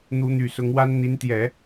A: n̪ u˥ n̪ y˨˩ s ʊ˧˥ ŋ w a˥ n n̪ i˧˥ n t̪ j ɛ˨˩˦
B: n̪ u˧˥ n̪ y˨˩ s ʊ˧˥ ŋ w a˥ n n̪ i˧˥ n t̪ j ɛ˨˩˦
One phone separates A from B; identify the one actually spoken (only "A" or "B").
B